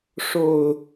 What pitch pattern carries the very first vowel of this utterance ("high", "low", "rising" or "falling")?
low